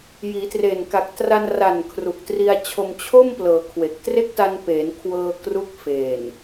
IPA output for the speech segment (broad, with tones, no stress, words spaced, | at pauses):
jiː˩˦tre˨˩nka˨˩k̚ tra˧nra˨˩n kʰru˨˩k̚tri˧a̯t͡ɕʰo˧m t͡ɕʰo˥˩m plɤː˩˦ kʰwe˨˩k̚ tre˥˩k̚ta˧n peː˩˦n kʰwɤː˧ kru˦˥k̚feː˨˩n